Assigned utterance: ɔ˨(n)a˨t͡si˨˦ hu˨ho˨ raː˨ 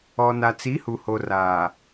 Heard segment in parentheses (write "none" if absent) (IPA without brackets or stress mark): n